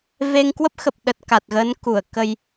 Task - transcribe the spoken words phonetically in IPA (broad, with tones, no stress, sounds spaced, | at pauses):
v e˧ ŋ k w ə˦˥ p̚ x ə˨˩ p̚ ɗ ə˨˩ t̚ k a˨˩ t̚ ɣ ə˨˦ n k u˧˩ ə̯ k ə˧ j